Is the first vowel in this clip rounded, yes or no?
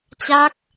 no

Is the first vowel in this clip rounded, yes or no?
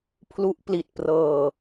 yes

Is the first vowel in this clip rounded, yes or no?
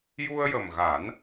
yes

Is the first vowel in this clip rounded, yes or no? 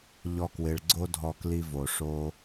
yes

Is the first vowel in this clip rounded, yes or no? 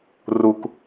yes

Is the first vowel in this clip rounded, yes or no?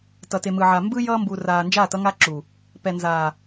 no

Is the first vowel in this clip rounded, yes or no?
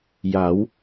no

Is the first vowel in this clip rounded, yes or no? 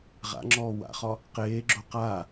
no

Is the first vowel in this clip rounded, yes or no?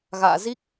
no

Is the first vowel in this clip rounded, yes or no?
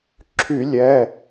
yes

